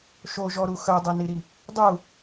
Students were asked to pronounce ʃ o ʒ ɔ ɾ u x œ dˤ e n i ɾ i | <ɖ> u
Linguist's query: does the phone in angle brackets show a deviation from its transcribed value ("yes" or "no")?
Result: yes